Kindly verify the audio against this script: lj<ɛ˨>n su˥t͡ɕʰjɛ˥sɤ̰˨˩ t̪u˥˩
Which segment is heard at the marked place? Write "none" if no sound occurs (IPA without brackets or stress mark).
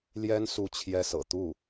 ɛ˥